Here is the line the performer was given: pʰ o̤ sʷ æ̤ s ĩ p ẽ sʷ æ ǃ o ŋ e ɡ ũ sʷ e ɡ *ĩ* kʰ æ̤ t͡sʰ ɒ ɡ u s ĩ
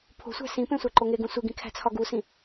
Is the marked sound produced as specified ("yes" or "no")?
yes